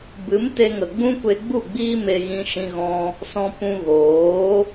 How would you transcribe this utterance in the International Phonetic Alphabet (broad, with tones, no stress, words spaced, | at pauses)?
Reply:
bɨ˨˦mte˧ŋə˨ ɡ͡bũ˦ kʷe˧ɡ͡bu˦˨ ɡ͡biː˦me˧ɣĩ˧ ʃĩ˧ɣɔ̃˧ | sɔ̃˧pũ˧ ɣoː˨˦